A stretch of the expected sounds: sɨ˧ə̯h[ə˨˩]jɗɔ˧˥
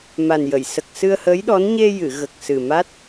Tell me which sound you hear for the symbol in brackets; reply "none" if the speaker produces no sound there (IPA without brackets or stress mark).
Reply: ə˧˥